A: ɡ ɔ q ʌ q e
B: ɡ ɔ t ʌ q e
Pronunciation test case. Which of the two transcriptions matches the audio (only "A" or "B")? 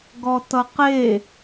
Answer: B